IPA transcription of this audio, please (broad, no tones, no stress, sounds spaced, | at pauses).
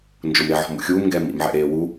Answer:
n d͡ʒ ʊ m ɾ e ʕ ɔ̤ m ṵ xʲ uː m ŋ ɡ ɛː m ḭ m ʕ ɛ̰ ɾ eː w u